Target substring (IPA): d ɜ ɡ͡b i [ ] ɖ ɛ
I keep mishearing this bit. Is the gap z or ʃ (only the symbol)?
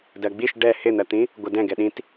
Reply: ʃ